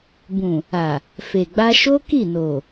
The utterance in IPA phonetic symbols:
bũ˨ | a˨ | fe˨ɡ͡ba˧ʃo˦ ki˦˨no˨

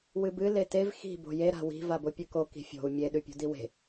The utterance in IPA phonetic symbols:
wɨbɨ letev xi̤ bo̤je ɾa̤wi̤ vabopʲɨko ki̤fʲo̤u̯ mʲe ɗʉpʲo̤diwe̤

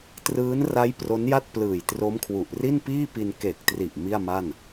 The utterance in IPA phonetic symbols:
trɯː˦˥nra˦˥j pro˦˥nja˥˩t̚plɯː˨˩j tro˦˥mkʰwu˨˩ʔ ri˥˩npiː˥˩pi˧n ke˨˩k̚tri˨˩ʔ mi˥˩a̯ma˥˩n

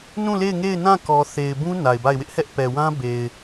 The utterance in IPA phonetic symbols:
nũ˦˨le˦˨ɪ̯ ŋe˦˨ɪ̯nã˦˨kɔ˨θe˨ɪ̯ bũ˦ na˨ɪ̯ba˦˨ɪ̯wɪ˦ʔ hɛ˦ʔpɛ˨wã˦ be˨ɪ̯

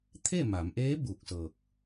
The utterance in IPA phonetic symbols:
t̪ʰe˥˨ma˩˧mʔeː˧˥ buː˧˩k̚sɤː˧˩k̚

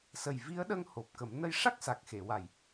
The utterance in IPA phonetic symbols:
sə˨˩jvi˧˥ə̯ɗə˧ŋ ho˨˩p̚kə˨˩˦m nə˧jʂa˦˥k̚ sa˨˩k̚xe˨˩˨wa˨˩j

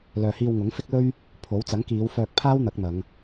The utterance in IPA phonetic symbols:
lœː˨hiː˧wŋʊ˨˥ŋ fɪ˥k̚lɵ˥ɥ | pʰo˨˥w t͡sɐ˨˥ŋkiː˨˧w fœː˧k̚pʰaː˥w n̪ɐ˨˥k̚n̪ɐ˨˧ŋ

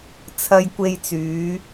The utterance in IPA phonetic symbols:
t͡sʰɐ˧jkʷe˧jt͡syː˨˧

